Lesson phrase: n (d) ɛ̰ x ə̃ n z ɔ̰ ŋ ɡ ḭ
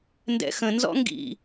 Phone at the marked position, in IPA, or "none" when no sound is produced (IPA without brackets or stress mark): d